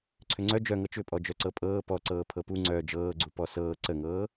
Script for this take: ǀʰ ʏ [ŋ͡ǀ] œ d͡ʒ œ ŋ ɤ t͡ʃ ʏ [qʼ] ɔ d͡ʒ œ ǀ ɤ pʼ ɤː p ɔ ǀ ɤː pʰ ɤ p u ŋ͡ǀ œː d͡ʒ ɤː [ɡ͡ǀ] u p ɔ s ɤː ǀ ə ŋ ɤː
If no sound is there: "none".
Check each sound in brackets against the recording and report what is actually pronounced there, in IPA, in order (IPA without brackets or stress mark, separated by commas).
ŋ͡ǀ, pʼ, ɡ͡ǀ